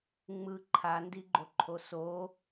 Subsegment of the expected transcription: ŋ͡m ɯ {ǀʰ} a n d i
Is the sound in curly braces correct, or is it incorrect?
incorrect